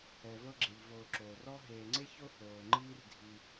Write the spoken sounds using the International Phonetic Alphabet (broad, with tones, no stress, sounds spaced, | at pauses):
ɛ˨ v ɤ˦ ɡ͡ǁ e˨ ʎ v oː˨ ǁ oː˩ r ɔ˦ ɦ eː˨ ŋ͡ǀ e˥ ç o˥ h oː˩ ŋ͡ǃ iː˦ r dʱ i˨